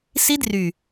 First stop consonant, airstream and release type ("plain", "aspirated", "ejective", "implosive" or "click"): plain